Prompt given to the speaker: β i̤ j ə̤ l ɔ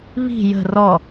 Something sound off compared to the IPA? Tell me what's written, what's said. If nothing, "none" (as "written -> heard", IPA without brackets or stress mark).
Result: l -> r